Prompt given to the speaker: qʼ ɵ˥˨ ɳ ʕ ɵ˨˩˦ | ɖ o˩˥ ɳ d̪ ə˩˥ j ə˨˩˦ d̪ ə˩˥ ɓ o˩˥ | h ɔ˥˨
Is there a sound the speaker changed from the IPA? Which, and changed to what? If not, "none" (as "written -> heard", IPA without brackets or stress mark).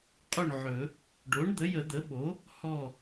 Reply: none